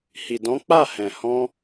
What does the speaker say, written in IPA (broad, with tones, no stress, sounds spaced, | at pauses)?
h i˨ d ɔ̃˨˦ k͡p a˦˨ h ɛ̃˨ h ɔ̃˧